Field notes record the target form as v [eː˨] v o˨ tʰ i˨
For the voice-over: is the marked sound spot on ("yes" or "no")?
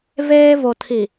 no